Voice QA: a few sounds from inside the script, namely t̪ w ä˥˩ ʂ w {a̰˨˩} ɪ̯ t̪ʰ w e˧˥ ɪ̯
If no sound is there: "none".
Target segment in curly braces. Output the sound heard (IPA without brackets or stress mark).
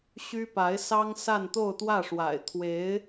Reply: a̰˨˩